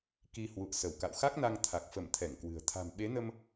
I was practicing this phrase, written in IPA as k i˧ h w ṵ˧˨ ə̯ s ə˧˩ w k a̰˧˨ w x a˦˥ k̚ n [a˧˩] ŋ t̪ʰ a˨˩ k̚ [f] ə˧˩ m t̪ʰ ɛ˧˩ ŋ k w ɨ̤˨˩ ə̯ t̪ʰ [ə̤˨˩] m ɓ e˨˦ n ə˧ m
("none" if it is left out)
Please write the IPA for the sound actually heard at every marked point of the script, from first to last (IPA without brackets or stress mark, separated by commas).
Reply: a˧, f, a̤˨˩